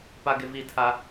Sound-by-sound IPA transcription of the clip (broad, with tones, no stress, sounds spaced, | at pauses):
p a˦ ɡ ɪ˦ v i˦˨ tʰ a˦